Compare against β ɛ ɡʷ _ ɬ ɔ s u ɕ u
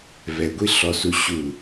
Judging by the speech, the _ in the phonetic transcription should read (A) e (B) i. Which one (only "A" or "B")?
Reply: B